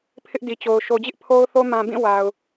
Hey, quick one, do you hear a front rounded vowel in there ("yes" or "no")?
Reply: no